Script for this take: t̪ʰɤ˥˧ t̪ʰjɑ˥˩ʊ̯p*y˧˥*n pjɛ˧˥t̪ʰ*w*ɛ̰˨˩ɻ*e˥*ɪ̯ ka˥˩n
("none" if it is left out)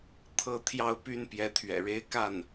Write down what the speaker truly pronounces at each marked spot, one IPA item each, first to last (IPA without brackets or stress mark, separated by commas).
y˥, ɥ, e˥